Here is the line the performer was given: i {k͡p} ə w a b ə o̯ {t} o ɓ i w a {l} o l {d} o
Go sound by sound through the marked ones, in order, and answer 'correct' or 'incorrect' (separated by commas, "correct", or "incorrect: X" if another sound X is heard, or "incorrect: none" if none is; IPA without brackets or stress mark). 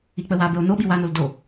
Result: correct, incorrect: n, incorrect: n, correct